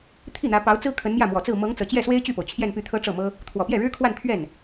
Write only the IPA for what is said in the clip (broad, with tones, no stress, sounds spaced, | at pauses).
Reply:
t̪ʰ i˥˩ n̪ ä˧˥ p ɑ˧˥ ʊ̯ t͡s ɹ̩˥ kʰ ə˧˥ n m j ä˥˩ m w ɔ˨˩ t͡s ɹ̩˥˩ m ɤ˧˥ ŋ t͡s ɤ˨˩ t͡ɕ j ɛ˥˩ s w e˥ ɪ̯ t͡ɕ y˥˩ p o˩ ʊ̯ t͡ɕʰ j ɛ˥˧ n p y˥˩ t̪ʰ ɤ˥ ʈ͡ʂ ɤ˥˩ m ɤ˥ | t̪ʰ w ɔ˨˩ p j ɛ˥˩ ɻ ɻ̩˥ kʰ w a˥˧ n t̪ʰ ɥ ɛ˥˩ n